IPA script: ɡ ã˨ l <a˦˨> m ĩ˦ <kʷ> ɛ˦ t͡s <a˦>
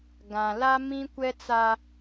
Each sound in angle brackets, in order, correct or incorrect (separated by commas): incorrect, correct, correct